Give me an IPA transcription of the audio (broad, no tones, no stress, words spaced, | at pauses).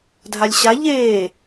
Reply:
dʱalʲɕa ʎeː